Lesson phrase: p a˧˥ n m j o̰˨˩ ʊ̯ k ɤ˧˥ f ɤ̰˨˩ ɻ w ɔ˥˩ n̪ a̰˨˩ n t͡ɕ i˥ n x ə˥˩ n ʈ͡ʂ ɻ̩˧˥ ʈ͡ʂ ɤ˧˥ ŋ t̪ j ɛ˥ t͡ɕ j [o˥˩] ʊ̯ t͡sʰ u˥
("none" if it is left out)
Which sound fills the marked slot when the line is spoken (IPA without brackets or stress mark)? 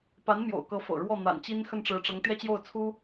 o˥˩